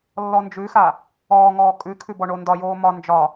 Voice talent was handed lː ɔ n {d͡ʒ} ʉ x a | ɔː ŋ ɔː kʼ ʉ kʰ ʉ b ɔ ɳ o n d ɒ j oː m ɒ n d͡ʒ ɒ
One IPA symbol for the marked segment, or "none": d͡ʒ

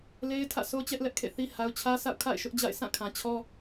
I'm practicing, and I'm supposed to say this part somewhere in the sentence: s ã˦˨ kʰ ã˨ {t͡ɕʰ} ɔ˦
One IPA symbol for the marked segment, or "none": t͡ɕʰ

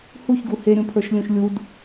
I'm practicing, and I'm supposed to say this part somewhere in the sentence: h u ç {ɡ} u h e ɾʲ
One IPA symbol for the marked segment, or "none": ɡ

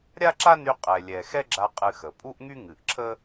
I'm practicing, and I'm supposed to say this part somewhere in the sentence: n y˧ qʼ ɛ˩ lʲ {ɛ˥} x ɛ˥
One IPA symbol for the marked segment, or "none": ɛ˩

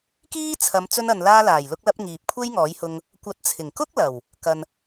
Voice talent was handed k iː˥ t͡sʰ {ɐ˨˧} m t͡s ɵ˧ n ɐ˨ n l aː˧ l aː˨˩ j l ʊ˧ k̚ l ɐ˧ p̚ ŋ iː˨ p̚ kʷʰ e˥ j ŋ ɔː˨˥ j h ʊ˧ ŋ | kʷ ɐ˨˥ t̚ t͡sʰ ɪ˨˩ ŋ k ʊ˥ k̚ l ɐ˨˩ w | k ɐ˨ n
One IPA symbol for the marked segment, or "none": ɐ˨˧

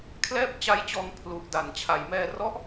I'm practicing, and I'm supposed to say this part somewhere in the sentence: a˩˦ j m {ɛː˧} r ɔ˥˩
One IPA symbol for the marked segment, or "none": ɛː˧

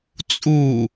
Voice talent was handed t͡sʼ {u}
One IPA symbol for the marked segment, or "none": u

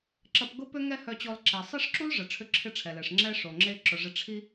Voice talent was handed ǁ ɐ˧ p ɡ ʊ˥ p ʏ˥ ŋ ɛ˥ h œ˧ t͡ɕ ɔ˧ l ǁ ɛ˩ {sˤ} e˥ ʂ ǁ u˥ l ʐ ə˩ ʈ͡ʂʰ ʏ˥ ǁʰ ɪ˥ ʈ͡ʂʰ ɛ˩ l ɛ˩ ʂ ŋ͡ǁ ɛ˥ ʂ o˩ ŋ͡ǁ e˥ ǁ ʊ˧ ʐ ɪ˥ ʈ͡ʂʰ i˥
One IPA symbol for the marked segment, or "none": sˤ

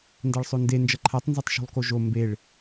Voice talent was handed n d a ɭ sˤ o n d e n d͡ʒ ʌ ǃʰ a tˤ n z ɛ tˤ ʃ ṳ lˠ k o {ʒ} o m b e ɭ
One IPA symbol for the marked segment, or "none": ʒ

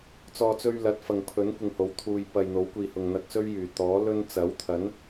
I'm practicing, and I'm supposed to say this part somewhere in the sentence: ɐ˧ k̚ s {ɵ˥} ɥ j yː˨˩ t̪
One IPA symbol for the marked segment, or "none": ɵ˥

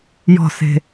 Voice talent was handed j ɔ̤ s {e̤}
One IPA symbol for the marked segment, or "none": e̤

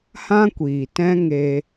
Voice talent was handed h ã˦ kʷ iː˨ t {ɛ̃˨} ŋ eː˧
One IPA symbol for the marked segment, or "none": ɛ̃˦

